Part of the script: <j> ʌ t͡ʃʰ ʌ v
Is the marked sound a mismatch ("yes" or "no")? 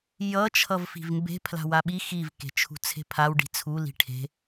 no